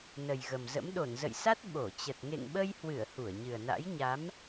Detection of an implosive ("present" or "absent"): present